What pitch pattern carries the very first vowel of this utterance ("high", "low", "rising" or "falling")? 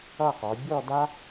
falling